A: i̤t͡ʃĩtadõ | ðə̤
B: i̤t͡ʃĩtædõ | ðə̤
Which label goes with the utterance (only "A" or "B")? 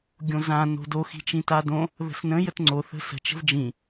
A